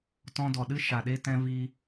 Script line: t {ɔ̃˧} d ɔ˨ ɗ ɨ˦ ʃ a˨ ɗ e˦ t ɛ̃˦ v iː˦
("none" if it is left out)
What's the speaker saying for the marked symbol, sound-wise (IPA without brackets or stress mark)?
ɔ̃˧